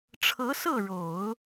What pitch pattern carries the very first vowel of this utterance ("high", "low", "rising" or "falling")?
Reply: rising